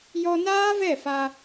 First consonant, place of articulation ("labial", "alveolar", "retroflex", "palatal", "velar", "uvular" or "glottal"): palatal